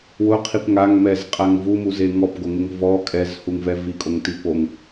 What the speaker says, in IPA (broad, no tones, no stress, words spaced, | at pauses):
wʊqʰip ŋaŋmɛzqʼaŋ vumuze ŋɔpɡoŋɪŋ vɔ kʼɛzhuŋvɛ vikʼoŋti poŋ